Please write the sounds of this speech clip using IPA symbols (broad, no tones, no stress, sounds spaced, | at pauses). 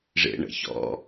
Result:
ʐ ḛ ɳ ə̰ ç ɔ̰